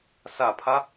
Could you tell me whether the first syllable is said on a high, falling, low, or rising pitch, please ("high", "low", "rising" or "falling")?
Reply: low